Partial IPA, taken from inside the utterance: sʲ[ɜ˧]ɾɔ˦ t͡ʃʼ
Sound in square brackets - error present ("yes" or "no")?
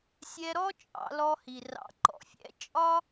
yes